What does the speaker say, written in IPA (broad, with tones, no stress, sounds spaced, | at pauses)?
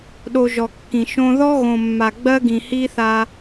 ɗ o˧ ʒ ɔ˨ kː ĩ˨ ʃ õ˧ ð ɔ˦ ɣ õ˨ mː a˨ ɡ͡b ɜ˦ ɡ ĩ˨ h i˦ θ a˧